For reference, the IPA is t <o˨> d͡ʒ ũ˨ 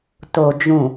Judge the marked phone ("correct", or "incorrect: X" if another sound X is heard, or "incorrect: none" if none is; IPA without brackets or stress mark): correct